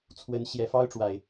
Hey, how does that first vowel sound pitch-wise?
rising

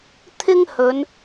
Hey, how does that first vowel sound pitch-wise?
high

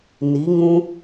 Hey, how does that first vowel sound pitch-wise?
rising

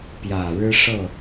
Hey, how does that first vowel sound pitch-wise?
low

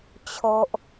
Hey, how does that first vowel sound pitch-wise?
low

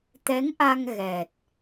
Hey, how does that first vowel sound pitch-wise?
rising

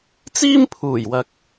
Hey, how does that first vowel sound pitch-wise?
high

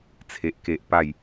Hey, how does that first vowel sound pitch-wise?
high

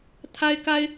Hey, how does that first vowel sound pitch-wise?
high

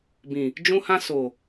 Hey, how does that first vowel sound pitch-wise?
low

